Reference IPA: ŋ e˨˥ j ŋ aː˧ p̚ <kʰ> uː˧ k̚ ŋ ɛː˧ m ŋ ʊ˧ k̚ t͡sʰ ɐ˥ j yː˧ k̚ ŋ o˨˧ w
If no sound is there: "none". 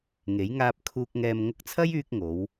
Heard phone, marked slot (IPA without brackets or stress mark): kʰ